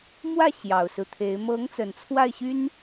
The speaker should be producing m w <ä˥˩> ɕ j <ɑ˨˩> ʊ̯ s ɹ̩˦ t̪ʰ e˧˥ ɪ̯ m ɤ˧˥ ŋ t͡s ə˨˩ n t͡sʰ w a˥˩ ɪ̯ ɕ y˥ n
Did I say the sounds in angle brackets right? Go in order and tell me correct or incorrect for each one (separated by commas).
correct, correct